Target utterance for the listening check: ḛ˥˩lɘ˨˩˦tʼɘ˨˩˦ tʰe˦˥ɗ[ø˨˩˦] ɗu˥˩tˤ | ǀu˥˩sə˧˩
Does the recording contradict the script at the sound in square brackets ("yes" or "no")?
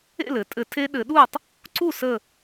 yes